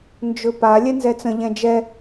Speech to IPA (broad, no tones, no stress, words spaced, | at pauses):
nd͡ʒɵpa lʲɛnzɛt͡sə̃ ʎɛ̃d͡ʒɛ